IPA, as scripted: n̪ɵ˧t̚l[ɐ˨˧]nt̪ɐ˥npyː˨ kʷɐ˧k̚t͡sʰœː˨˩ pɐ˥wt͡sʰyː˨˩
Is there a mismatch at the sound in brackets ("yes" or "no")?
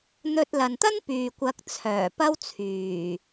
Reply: yes